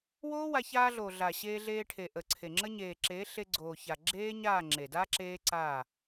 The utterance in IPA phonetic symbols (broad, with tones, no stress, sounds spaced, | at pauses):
w oː˦ w a˧ ç aː˧ ɮ oː˨ ɮ a˨ ɕ eː˧ ɮ eː˧ ʈʰ e˨ ʔ ə˨ ǀʰ e˨ ŋ͡ǁ ə˦ ɲ eː˨ ǁ eː˨˦ ɬ e˧ ɡ͡ǀ oː˨ ç a˨ ɡ͡ǁ eː˦ ɲ aː˦˨ ŋ͡ǁ e˨ d a˦ ǁ eː˦ ǀ a˦˨